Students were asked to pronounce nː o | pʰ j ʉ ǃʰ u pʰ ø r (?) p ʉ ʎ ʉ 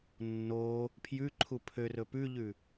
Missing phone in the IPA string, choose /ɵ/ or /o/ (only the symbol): ɵ